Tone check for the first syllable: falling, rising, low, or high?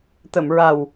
low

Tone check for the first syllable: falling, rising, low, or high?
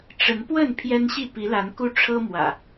rising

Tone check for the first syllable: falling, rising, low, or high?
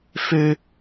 high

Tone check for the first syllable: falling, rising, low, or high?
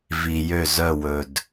low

